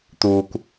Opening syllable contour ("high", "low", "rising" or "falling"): low